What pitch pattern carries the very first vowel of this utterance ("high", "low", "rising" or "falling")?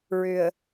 low